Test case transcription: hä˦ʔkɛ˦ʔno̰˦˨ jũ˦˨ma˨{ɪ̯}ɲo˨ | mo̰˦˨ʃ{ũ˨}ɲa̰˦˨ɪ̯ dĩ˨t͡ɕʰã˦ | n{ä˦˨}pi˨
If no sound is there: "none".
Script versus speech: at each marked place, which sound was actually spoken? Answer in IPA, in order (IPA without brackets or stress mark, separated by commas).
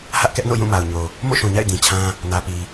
ʊ̯, ũ˨, ä˨